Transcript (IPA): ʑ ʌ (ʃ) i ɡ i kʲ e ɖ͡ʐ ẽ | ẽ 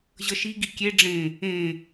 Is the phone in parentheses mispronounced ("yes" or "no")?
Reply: no